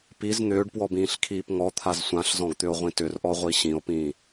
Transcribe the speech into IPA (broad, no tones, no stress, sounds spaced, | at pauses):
p i z n̪ ʏː ɖ p w ɔ b ĩː ɬ kʰ iː p ŋ ɔ t̪ʰ a z sʷ ã ɬ z ɔ̃ ɡ t̪ ʏ o̯ ʁʷ ĩ t ʏ r ʔ ɔ ʁʷ i ɕ ĩ o̯ p ĩː